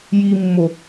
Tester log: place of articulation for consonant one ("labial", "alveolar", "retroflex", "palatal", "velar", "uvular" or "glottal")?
palatal